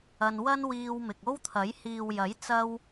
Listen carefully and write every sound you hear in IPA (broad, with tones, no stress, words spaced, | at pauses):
ɐ˧n wɐ˥n wiː˧wmɪ˨k̚ o˥wt̪ʰɐ˨˥j hiː˨wjɐ˨˥j t͡sɐ˥w